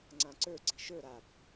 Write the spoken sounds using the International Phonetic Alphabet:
ŋ͡ǀ ã ǀ ə˞ ǀ i̤ ʃ ə˞ ɾ a b

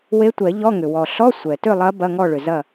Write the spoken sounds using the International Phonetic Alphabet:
w e˧˥ tʷ ɛ˨˩˦ ʎ ɔ˧˥˧ ŋ ʏ˩ w ɔ˩ ɬ ɔ˧˥˧ sʷ ɛ˩ t ʏ˥˨ lˠ ɐ˧˥ b ɐ˧˥˧ ŋ ɔ˥˨ ɭ ʏ˩ z ɐ˥˨

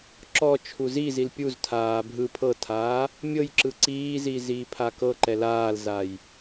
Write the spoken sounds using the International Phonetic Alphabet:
ǁ ɔ t͡ʃʰ u z i z i l pʲ u z tʰ aː bʱ ɯ pʰ ɤ tʰ aː | mʲ ɤ j ǁ ɯ ǀ iː z i z iː pʰ a k ɤ ǃ ɛ l aː l z a j

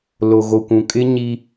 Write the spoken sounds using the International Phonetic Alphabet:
l o˨ ɣ o˨ kʷ ũ˨ kʼ ɪ˦ ɲ i˦

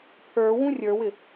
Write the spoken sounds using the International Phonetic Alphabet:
pʰ ə˞ w ũ rʲ ə˞ w ɪ

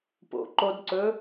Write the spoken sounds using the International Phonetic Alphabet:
p o̰ ǃ o d ǀ ɵ

